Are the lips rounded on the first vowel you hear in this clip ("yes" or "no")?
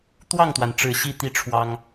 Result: no